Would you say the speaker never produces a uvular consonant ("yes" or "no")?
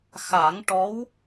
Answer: yes